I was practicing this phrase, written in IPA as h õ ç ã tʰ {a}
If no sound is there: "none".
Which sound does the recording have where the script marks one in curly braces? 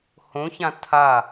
a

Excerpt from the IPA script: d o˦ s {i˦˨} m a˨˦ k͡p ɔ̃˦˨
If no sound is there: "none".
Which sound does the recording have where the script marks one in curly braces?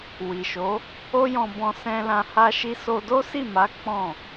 i˦˨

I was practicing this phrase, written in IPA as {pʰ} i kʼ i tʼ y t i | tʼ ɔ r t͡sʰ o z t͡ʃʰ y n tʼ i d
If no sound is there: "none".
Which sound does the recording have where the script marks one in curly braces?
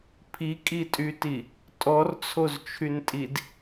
pʰ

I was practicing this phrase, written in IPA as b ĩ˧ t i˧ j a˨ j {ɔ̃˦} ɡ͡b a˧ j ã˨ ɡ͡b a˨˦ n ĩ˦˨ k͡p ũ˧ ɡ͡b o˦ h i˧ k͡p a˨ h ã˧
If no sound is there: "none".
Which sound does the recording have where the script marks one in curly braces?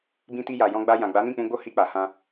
ɔ̃˧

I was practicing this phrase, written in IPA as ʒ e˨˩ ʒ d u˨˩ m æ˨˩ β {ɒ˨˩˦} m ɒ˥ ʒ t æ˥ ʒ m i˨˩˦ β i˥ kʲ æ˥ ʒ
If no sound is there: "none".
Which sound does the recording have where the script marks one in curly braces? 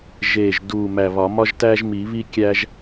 ɒ˨˩˦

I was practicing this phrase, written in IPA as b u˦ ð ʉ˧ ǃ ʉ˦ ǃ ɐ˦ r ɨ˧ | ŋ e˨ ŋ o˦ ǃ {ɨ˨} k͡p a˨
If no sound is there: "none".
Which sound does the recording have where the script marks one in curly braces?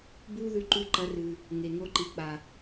i˨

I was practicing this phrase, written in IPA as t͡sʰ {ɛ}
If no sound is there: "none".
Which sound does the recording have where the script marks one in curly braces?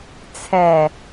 ɛ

